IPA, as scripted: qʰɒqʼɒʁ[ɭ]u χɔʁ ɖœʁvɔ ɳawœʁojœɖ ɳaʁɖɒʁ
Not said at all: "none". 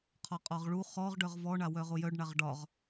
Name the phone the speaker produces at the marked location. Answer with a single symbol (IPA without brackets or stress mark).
ɭ